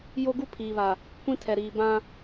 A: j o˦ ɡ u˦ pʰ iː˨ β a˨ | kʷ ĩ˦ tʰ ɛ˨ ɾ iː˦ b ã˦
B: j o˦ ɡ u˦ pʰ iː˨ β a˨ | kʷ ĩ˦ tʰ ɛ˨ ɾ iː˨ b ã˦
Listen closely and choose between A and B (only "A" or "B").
B